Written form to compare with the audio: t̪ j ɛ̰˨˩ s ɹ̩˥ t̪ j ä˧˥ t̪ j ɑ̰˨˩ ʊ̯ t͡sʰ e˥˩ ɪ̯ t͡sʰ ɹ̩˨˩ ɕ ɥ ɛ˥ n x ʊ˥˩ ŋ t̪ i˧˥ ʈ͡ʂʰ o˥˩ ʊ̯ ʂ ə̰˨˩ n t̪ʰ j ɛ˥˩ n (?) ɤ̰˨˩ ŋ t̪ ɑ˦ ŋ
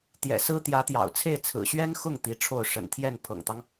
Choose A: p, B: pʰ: B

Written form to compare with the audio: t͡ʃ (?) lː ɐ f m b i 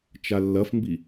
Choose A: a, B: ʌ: A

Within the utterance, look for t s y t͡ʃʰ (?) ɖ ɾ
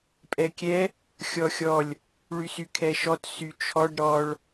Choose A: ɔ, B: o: A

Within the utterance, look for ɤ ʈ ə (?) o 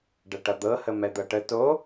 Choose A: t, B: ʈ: A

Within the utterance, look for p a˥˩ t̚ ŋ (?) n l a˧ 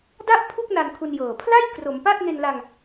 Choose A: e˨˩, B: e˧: B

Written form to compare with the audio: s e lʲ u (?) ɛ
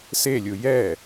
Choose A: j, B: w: A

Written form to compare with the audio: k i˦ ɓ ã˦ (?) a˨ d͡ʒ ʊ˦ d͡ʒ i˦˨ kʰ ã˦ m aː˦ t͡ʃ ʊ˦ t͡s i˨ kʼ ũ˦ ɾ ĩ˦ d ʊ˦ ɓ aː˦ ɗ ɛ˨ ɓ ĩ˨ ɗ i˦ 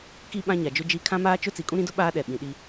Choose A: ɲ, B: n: A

